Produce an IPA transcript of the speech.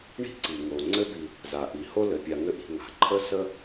ɳi̤˥ǀi˩ŋo˩ ŋ͡ǀɘ˥bi˨ | za˩ʔi˩ ho˥lɘ˩pʲa˨ŋɘ˦ ʔi̤˨ŋa̤˩ ǃʰə˥sə˥

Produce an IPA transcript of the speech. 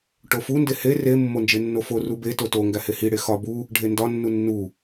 ʈofunde he re mːond͡ʒenːofo rubeto to ŋɡæhehiɽe xɒ bu | ɖʱendɒnːu nːu

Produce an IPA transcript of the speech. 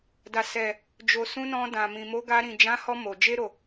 da˨ sɛ˨ | d͡ʒo˨ sũ˧nɔ̃˧ dã˨mĩ˨ mo˨˦ɡa˧ ɾĩ˨d͡ʒã˨˦hɔ˧ mo˨ d͡ʒe˧ɾo˨

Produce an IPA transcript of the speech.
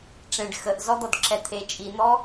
ʈ͡ʂẽɖ xəʔzɔ d̪ɔdǁɛt̪ʰe t͡ʃʼin̪ɔ

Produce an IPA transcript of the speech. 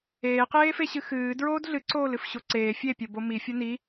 eːqeːfeɕɨ xɨː dɹoːdɮɨǀoːl ɨfɕoǀeː fʲepʲo bomifʲo ni

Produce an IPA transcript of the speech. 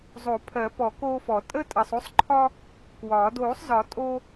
zˤo˨˩˦pʰɜ˨˩˦pɔ˨˩˦ koː˧fɔ˨˩˦ tʼə˥tʼɐ˧sˤ o˥sˤǃʰɒ˥ | kwɒː˨˩˦ doː˨˩˦sˤzɒ˨˩˦ tʼo˧

